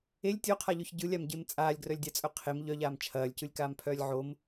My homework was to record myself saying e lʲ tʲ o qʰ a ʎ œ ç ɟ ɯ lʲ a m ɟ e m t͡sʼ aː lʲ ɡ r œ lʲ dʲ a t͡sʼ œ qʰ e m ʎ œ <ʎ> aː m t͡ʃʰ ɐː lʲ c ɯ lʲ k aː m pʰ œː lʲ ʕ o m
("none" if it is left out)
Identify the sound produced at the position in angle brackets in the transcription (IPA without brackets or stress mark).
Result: ʎ